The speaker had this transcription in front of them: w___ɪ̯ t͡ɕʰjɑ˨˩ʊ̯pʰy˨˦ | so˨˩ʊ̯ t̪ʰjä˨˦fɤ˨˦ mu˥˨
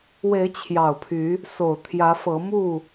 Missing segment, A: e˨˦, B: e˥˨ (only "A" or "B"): A